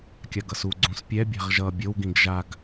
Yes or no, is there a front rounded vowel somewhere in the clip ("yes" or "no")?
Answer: no